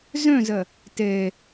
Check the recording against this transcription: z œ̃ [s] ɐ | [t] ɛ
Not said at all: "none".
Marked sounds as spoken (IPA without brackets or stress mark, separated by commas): z, t